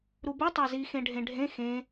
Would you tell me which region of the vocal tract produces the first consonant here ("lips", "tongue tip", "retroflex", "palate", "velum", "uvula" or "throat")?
tongue tip